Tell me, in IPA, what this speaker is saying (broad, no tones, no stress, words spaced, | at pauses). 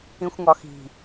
ĩxʷŋɒxi̤